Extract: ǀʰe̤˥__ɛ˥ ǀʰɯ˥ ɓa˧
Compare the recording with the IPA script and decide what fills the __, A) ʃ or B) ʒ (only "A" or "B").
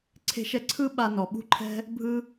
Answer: A